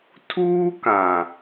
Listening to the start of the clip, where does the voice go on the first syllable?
high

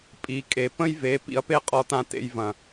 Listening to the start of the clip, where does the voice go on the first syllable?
rising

